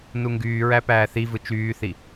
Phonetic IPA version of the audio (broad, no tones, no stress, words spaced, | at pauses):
nuŋɡyːɹæ pæːθivɯ t͡ʃyːθi